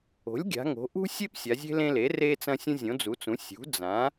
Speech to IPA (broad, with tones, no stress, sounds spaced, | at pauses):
o̤˩˥ lʲ ɡʲ a̤˩˧ ŋ o̤˩˧ ʔ ṳ˦ sʲ e˦ p sʲ a˩˧ zʲ e̤˦ l ẽ˦ l e˩˥ r e˦ t͡s ɐ̃˦ sʲ ũ˦ zʲ õ˩˥ d͡z u˩˥ t͡s ũ˩˥ sʲ ṳ˩˥ d͡z ã˩˥